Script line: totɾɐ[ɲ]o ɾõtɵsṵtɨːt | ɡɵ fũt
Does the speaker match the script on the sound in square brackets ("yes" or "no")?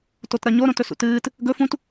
yes